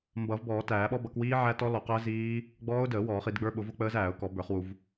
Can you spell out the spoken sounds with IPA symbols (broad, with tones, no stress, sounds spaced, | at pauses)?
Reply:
m b ʌ˨˩˦ v b ɔː˨˩˦ t æː˨˩˦ ɓ ɔ˦˥ b ʌ˨˩˦ k w iː˦˥ ʕ æ˦˥ t ɔ˦˥ l ɔ˨˩˦ q əː˦˥ z iː˦˥ | ɡ͡b ɔː˦˥ ʊ̯ d əː˨˩˦ w ɔː˨˩˦ χ i˨˩˦ d ɡ͡b ə˞˦˥ ɓ ʊ˨˩˦ v ʊ˦˥ k͡p əː˦˥ z æː˨˩˦ ʊ̯ k ɔ˨˩˦ b ə˞˨˩˦ χ w u˨˩˦ v